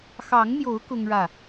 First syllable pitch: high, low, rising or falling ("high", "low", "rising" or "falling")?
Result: rising